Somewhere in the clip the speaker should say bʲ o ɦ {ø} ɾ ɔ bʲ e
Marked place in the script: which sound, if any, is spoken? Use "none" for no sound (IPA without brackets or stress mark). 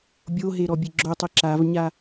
e